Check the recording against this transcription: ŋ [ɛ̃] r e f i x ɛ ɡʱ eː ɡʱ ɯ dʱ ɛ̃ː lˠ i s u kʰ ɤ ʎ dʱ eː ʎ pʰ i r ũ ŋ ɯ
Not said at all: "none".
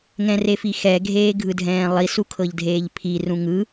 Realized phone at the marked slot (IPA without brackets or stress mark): ɛ̃